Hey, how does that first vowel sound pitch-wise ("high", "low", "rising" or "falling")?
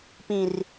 low